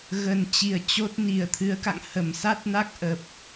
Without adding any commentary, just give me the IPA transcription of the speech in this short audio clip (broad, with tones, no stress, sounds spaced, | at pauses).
ɣ ə˨˩ n t͡ɕ i˨˩ ə̯ t͡ɕ o˦˥ t̚ n i˨˩ ə̯ t̪ʰ ɨ˨˦ ə̯ k a̰˧˨ ŋ h ə˧˩ m s a˦˥ t̚ n a˦˥ k̚ ʔ ə˨˩ p̚